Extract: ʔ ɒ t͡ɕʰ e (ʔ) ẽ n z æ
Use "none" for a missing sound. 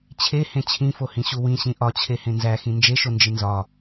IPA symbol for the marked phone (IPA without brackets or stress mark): h